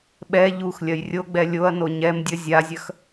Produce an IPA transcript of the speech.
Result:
ɓ ɛ ʎ u x lʲ ɐ j rʲ o ɡ͡b ɛ lʲ o ɐ̯ n o ɲ ɛ m dʲ ə zʲ a zʲ ɐ x

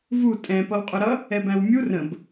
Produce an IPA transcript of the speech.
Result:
v u tʼ ɛ̃ p ʌ w qʼ ʊ ɾ ʌ | ɛ b æ̃ w mʲ u r ə̃ b

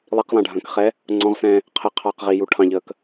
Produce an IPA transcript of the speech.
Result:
lˠ i q lˠ ɑ̃ ɖʱ ə̃ː k χ ɛ | ŋ͡ǀ ɔ̃ ʁ s ɛ̃ː | qʰ ə qʰ ɑ q ʁ iː j u ʈʰ ɑ̃ ʎ əː k

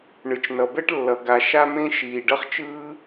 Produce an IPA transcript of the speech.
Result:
ɳ ɯ˩ t͡ʃ n ʌ˩ b ɛ˥ ʈ lː ʌ˩ ɡ a˩ ʃ a˥ m ẽ˥ ʃ iː˩ ɖ ʌ˥ χ t͡ʃ ɯː˥

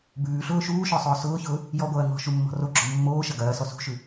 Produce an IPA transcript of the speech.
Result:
b ʉː ɬ ʊː ʃ uː ʃ ɔ sˤ ʊː s ʊː ç ʊː | j ɔ ɡʷ ɐː ŋ ɔ̤ ʃ u mː ɔ̤ r o ɡ͡ǁ ɔ mː oː ʃ ɐ ɡ ɐː s ɔ s ṳ ʃ ʉ

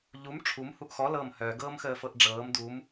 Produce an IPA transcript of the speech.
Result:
ʎ u m ʈ͡ʂʰ u m h u ʔ x ɔ l ɤ m h œ ɡ ɤː m x əː f ɤ ʔ ɖ͡ʐ ɤː m d u m

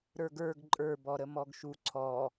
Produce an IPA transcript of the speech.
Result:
ɾ ə˞ ɡ ə˞ ɡ ǃʼ ə˞ b ɔ ɾ ə m ɔ ɡ ʃ u ǀʰ ɔ

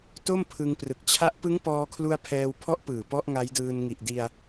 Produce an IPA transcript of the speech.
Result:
t o˥˩ m pʰ ɯ˧ ŋ p r ɯ˨˩ k̚ t͡ɕʰ a˦˥ ʔ p ɯ˦˥ ŋ p ɔː˧ kʰ l u˧ a̯ pʰ ɛː˧ w pʰ ɔ˦˥ ʔ p ɯː˨˩ p ɔ˦˥ ʔ ŋ a˦˥ j d ɯː˧ n ŋ i˨˩ ʔ d i˧ a̯

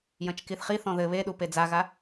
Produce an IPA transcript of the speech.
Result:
j ɐ̃ t͡ʃ k i θ χ i θ ɔ̃ ð ɘ β e ɗ u p e d͡z a ɣ a

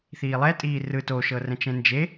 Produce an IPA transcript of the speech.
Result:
θ iː lˠ ɛ tʼ iː r ɯ t o ʃ ɤ r ɛ̃ t͡ʃ ɛ̃ n d͡ʒ e

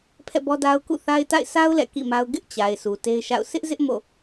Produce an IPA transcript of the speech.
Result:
pʰ ɛ̰˦˨ b ɔ˦ d a˦ ʊ̯ k ṵ˦˨ θ a˦ ɪ̯ t a̰˦˨ ɪ̯ sʰ a˦ ʊ̯ l ɛ̰˦˨ k ḭ˦˨ m a˦ ʊ̯ ɡ ɪ˦ ʔ t͡ɕ a˨ ɪ̯ s u˨ t e˦ ɪ̯ ʃ a̰˦˨ ʊ̯ sʰ ɪ˦ ʔ z ɪ˦ ʔ m o̰˦˨

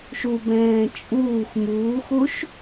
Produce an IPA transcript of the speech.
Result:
ʃ u b ɛ̃ː t͡ʃʼ uː x m uː x u ʃ

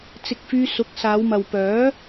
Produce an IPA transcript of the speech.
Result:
t͡s ɪ˧ k̚ f yː˧ s ʊ˨˥ k̚ s aː˨˧ w m ɐ˨ w p œː˨˥

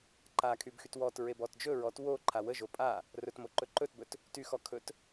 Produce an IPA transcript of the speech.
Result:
ǃ a kʰ y b x y t w ɔ t ɹ e b ɔ t d͡ʒ ɵ ɹ ɔ t w o ǃʰ a w ə ʒ o pʼ a | r ɵ t m o ǃ ɵ ǃ ɵ t b ɵ t | t y x ɔ kʰ ɵ t

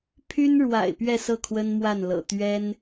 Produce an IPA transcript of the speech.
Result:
pʰ y˥ n ɻ w a̰˨˩ ɪ̯ p ɥ ɛ˥˧ s ɤ˥˩ kʰ w ə˥ n m w a˥˩ n l ɤ̰˨˩ t̪ ɥ ɛ˥ n

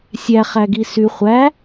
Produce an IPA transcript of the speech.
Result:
sʲ æ χ æ ɡ i s y χʷ æ

